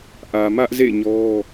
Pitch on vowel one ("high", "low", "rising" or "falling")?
low